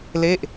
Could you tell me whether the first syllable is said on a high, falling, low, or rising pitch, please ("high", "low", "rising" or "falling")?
falling